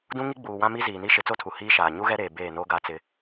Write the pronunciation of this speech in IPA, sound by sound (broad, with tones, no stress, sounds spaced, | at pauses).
d ũ˦ ŋ i˦ ɡ͡b uː˨ w ã˦ m i˦ z iː˨ n i˦ ʃ ɪ˨˦ t͡s o˦ tʰ u˨ h iː˦ ʃ aː˨ ɲ u˦ ɣ ɛ˦ ɾ eː˨ b eː˦˨ n o˦ ɡ a˦ t͡s ɪ˦